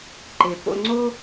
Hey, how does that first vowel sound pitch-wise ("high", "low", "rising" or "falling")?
low